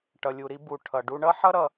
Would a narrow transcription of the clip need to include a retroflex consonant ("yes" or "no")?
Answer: yes